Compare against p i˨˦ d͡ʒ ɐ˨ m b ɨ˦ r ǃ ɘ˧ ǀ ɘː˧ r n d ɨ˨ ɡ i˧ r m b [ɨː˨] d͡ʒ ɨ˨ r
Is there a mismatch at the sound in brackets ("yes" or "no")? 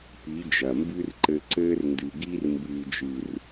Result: no